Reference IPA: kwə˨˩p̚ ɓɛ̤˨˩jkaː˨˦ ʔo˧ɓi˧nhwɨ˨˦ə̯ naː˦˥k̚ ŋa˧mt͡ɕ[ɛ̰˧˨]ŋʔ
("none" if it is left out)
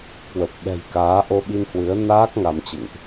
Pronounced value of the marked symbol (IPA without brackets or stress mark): ɨ̰˧˨